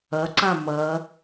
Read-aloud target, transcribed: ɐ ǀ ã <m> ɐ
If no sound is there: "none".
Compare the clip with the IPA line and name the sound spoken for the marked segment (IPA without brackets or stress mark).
m